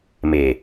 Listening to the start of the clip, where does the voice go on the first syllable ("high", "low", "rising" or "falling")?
low